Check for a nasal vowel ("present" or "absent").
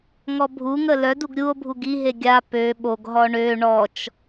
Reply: absent